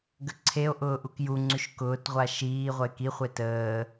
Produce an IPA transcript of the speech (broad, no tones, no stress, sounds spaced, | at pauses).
ɡ ə ǀʰ e o̯ ʔ ʊː ʔ u k j u ŋ͡ǀ y ʃ k ʊː t ʁʷ a ʃ iː ʁʷ ə e̯ k i χʷ e t əː